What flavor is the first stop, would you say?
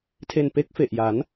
aspirated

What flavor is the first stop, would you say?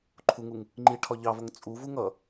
click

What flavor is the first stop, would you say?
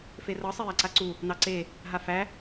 click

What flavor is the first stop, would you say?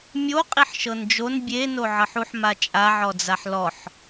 ejective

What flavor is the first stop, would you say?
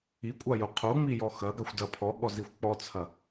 ejective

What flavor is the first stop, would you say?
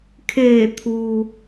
aspirated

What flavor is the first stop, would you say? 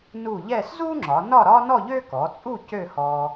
click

